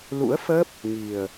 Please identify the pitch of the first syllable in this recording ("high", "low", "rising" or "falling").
rising